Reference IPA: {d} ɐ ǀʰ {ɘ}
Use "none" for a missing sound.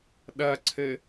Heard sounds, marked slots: ɗ, ɘ

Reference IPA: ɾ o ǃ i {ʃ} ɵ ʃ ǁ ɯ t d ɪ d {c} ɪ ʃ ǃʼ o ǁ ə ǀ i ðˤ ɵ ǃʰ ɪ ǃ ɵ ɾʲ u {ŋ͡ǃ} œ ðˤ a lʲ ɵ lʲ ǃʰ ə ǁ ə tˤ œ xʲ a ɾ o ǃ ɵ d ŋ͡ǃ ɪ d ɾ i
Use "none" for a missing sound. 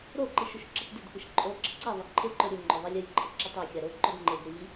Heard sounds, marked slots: ʃ, k, ŋ͡ǃ

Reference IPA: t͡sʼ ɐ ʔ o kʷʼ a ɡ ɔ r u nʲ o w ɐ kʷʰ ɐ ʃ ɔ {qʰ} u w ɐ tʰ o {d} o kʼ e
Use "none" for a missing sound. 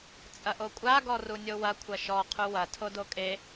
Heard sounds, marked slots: qʰ, d

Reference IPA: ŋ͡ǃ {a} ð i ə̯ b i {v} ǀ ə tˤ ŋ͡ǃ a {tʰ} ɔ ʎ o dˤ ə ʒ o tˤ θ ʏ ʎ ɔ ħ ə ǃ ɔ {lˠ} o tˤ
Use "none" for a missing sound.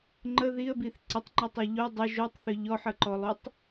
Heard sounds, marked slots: ə, θ, tˤ, lˠ

